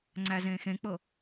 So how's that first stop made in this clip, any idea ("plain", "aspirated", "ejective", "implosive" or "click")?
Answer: click